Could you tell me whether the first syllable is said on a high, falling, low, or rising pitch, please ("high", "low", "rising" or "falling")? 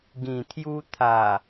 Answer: low